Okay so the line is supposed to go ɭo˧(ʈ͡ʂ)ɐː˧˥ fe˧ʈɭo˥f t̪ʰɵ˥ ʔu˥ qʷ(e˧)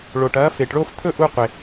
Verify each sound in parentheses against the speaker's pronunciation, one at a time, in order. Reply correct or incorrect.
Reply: incorrect: ʈ, correct

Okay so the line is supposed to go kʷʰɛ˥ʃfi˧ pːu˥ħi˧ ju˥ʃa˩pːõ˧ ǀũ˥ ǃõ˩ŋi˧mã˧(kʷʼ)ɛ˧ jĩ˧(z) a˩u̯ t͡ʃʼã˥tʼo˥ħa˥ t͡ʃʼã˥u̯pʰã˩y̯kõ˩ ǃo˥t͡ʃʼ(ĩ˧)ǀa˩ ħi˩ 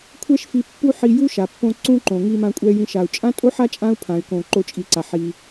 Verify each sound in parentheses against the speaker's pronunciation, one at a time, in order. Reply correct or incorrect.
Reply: correct, incorrect: ʃ, incorrect: i˧

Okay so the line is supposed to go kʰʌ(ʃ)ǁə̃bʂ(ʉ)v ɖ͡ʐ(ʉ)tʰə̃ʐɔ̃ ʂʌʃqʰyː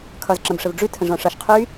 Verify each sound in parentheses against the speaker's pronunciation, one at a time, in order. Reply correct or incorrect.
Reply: incorrect: z, incorrect: ə, correct

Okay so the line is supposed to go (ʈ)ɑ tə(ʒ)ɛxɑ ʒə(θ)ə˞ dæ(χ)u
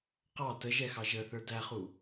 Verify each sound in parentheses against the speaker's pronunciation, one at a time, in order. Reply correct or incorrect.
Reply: incorrect: q, correct, correct, correct

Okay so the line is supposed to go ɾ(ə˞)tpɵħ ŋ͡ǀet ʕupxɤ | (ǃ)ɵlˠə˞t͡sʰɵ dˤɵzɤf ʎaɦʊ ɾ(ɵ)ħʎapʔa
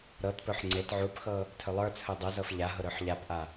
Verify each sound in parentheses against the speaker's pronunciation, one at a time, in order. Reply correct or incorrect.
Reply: incorrect: ɤ, incorrect: tʰ, correct

